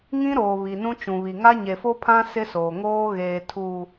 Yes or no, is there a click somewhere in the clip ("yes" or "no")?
no